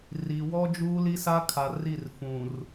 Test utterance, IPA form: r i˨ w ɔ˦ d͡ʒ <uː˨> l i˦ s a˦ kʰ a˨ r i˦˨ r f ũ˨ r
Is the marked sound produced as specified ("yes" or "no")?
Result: no